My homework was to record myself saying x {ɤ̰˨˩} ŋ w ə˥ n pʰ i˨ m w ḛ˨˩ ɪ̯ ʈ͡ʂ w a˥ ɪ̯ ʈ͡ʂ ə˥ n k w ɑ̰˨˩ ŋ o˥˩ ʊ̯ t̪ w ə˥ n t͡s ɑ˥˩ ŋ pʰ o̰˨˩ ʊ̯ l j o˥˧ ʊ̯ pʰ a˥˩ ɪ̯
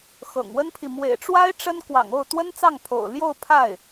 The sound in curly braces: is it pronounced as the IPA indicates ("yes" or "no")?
yes